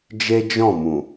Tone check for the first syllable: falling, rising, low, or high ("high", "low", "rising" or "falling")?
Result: high